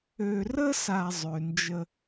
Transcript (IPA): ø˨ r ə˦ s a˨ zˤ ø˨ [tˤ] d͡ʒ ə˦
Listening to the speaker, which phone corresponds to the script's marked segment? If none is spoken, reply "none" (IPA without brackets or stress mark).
n